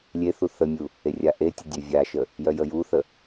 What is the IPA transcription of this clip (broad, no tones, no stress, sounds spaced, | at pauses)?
lʲ e θ u θ ə mʲ u | e rʲ a ʔ e tʲ ə dʲ ø vʲ a ʃ ə | j œ j ə j u θ ə